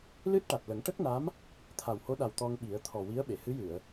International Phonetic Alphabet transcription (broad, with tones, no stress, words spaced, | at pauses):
lɨ˦˥t̚ ʈa˨˩t̚lə˨˩˦ŋ ʈə˦˥k̚na˧˥m | t̪ʰa˨˩who˧˥ɗa˨˩w t̪ɔ˧ŋɓi˨˩˦ə̯ t̪ʰɔ˨˩wi˧˥ə̯ ɓe˨˩˨hɨ˧˥jɨ˨˩˨ə̯